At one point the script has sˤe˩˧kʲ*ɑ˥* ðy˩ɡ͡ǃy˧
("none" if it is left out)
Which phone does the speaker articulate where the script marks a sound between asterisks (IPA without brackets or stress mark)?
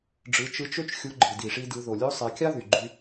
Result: ɑ˥